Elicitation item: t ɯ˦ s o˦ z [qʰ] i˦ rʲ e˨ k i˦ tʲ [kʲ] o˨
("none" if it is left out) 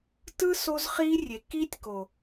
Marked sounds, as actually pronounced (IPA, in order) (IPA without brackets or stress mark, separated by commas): χ, k